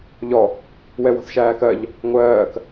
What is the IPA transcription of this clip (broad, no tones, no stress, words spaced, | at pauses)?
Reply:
ʎɔ | wɛwɔ̤θʃæːkɜʎ | ŋʷɜːk